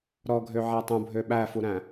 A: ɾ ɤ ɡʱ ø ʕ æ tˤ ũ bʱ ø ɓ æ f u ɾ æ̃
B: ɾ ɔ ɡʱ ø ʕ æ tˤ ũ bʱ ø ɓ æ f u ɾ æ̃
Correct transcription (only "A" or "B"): B